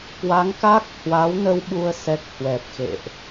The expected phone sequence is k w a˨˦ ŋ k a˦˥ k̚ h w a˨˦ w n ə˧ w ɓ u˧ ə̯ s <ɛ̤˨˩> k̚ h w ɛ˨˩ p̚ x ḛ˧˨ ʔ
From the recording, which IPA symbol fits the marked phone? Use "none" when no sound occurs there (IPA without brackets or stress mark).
ɛ˦˥